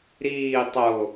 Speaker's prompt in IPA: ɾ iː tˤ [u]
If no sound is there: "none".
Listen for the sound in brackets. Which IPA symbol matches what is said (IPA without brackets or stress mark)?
o